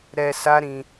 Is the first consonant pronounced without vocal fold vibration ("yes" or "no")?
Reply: no